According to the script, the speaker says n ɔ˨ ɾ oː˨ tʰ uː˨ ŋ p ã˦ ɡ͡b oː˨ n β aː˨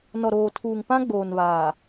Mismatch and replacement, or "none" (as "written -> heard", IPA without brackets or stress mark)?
none